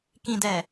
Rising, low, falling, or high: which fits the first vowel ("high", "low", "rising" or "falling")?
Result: low